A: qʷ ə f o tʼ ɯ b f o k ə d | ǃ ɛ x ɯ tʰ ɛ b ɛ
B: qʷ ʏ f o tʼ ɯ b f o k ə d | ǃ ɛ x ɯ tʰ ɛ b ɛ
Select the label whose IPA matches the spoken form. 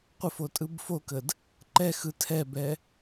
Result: A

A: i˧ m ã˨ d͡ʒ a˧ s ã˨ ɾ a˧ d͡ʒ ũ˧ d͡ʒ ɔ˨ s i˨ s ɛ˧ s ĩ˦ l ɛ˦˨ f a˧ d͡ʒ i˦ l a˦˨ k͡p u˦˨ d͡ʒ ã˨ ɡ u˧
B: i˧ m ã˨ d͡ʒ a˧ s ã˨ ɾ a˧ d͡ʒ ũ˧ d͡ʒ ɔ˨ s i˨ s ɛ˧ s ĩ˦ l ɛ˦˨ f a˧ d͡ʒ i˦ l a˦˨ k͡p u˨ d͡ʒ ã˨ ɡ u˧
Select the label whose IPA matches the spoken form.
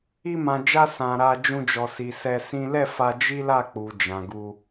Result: B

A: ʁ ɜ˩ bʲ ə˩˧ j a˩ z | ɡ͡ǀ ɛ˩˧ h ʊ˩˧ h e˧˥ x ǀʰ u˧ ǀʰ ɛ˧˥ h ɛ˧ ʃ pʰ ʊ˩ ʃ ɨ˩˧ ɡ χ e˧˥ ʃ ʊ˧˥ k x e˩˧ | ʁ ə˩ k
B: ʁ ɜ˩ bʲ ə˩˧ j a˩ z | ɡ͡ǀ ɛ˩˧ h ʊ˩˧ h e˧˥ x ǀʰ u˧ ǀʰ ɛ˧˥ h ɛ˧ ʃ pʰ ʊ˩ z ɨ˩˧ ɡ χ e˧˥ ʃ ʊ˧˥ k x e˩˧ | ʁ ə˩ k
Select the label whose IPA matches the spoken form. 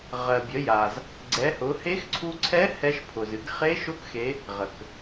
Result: B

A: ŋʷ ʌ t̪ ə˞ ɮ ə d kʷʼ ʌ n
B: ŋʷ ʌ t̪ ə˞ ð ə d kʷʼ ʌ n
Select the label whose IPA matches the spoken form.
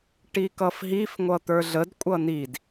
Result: A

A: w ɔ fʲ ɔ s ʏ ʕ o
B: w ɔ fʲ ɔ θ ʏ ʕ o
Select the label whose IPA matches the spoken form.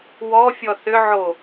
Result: B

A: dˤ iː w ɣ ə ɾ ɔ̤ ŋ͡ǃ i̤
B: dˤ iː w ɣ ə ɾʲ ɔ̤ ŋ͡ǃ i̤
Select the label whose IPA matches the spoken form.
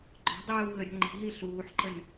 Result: B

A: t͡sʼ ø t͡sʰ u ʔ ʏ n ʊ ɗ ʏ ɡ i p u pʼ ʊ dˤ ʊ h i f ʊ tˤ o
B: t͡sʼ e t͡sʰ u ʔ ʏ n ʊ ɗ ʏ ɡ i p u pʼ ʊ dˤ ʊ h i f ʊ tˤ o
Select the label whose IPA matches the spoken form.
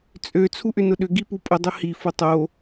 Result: A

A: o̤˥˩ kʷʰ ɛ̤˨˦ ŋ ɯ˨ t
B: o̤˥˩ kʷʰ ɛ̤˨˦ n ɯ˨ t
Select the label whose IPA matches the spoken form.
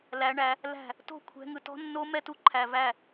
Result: A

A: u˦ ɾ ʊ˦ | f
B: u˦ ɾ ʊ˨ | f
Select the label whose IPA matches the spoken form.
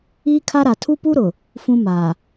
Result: B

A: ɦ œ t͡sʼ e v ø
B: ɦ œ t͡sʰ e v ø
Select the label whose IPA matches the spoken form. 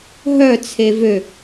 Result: B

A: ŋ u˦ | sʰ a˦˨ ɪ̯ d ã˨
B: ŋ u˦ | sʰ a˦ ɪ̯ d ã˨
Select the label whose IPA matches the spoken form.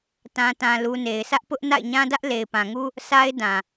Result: B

